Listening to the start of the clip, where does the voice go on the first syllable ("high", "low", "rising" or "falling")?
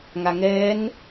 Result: low